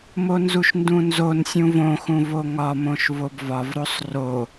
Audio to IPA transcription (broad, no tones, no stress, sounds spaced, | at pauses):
m o n z u ʃ n d ũ n z o n sʲ ũ v õ x ũ v o ŋ ɒ m õ ʃ v o b v ɒ v ɾ o sˤ r o